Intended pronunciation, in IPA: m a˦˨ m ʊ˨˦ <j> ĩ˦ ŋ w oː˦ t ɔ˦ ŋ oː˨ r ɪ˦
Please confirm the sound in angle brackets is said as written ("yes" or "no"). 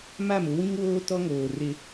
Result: no